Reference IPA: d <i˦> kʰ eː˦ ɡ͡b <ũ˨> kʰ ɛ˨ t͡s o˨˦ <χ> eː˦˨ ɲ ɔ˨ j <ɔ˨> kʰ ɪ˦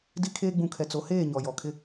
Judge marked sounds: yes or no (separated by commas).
yes, yes, no, yes